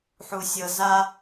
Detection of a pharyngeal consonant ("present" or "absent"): present